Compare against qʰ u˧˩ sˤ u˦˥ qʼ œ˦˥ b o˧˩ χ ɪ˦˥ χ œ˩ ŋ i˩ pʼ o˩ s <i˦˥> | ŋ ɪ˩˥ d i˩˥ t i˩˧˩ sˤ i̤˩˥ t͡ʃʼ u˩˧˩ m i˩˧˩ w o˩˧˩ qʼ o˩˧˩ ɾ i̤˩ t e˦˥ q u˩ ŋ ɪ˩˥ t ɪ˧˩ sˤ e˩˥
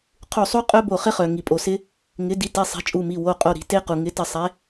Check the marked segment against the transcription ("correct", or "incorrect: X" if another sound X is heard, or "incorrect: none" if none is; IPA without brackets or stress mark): incorrect: ɪ˦˥